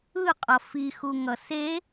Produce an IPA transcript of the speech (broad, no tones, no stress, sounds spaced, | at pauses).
ɯ qʼ ʌ f i x u ŋ ʌ s e